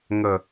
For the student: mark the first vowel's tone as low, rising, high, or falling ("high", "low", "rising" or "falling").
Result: low